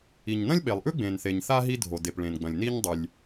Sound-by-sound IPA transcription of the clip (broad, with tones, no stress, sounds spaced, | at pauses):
i˩ ɲ n ɐ̃˥ lʲ ɓ e˩ lˠ ʔ ʉ˥ ɡ͡b ẽ˩ n θ e˩ ɲ θ a˥ ɦ i˥ dʱ o˩ d e˩ p ɭ ẽ˩ n ɡ͡b ɐ̃˩ lʲ n i˥ ɲ dˤ ʉ˩ lʲ